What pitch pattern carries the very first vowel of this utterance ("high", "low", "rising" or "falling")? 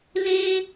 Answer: high